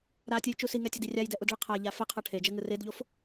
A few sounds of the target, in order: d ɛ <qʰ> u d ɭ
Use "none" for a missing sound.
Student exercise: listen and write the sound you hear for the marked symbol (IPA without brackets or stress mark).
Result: ʔ